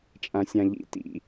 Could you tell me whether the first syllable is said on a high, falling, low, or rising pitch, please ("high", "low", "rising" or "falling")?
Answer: low